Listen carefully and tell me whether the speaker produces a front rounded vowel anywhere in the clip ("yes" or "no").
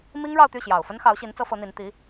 yes